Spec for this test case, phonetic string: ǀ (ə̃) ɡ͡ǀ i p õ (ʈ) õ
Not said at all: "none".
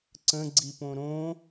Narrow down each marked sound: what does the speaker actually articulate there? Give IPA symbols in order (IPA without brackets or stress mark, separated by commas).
ə̃, ɾ